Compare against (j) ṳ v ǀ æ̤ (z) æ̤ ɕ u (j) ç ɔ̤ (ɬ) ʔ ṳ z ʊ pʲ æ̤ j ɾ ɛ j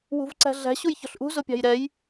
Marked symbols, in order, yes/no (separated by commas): no, no, yes, yes